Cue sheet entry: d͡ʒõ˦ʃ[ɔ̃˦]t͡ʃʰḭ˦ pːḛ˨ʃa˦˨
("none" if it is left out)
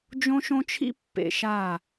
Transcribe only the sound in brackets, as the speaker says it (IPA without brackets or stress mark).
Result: õ˦